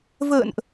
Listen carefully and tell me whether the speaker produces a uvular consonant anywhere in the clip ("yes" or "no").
no